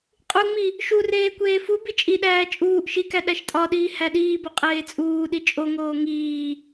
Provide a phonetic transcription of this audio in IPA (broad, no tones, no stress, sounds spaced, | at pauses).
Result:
qʼ u ŋ͡m i | ʃ u r eː kʷ eː f u b i t͡ʃʼ i ɗ æː t͡ʃʼ uː ʔ ʃ i k æ ɗ æ ʃ tʼ ɒ ɗ iː h æ ɗ iː b o qʼ eː t͡sʼ uː ɗ i t͡ʃʼ o ŋ oː ŋ iː